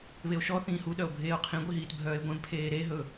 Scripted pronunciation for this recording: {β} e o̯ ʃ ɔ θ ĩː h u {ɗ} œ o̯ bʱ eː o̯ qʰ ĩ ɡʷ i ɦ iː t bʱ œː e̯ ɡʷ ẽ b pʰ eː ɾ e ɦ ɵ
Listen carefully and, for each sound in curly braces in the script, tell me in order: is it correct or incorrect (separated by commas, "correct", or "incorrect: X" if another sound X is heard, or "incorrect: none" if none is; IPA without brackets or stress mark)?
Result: correct, correct